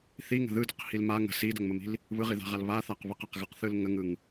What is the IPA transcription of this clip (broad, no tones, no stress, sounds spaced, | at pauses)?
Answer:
θ i ŋ ə̤ ð ɯ d ə q h i l m a ŋ ə̤ s i d ə ŋ m ə m i̤ l | β ɯ ʁ i ð a̤ ʁ a l β a θ a q β ə q a q ɣ ɯ q θ ɯ l ŋ ə ŋ ɯ ŋ